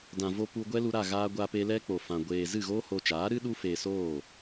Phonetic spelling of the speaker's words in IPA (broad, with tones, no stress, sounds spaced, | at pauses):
d ã˨ v o˧ p u˧ ɡʷ ɛ˦ l u˧ ɾ a˦˨ ɣ aː˧ ɡʷ a˧ p e˧ l ɛ˦ k͡p o˨ f ã˨ ɡʷ eː˨ z ɨ˦˨ ɣ oː˦ h oː˧ t͡ʃ aː˨˦ ɾ ɨ˦ ɗ u˦ f eː˧ s oː˦˨